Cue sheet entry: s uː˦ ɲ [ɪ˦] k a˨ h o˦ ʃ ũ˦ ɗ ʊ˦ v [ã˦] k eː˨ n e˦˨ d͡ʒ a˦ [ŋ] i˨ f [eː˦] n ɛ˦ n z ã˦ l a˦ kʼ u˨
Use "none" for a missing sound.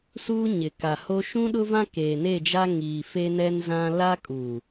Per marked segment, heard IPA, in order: ɪ˨, ã˦, ŋ, e˦

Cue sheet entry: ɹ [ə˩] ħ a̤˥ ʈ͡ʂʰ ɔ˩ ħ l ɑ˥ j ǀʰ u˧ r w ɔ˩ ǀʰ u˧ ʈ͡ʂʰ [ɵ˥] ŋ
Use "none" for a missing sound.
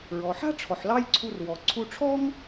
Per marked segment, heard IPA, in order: ɔ˩, ɔ˥

